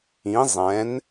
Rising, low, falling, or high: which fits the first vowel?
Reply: rising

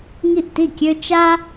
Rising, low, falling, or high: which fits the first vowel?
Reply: falling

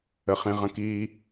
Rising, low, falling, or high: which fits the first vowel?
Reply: low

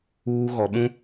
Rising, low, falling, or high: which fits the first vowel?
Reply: low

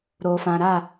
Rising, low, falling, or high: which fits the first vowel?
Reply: low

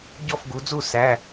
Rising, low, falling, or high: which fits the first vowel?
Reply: falling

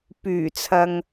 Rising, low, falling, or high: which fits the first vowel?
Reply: low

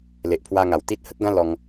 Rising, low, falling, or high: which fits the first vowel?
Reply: low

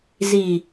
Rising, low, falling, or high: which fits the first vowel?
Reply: low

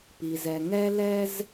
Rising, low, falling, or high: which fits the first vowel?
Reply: low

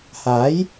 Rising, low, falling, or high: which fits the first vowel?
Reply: rising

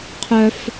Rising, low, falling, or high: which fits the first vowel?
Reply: high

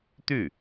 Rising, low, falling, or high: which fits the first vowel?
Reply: falling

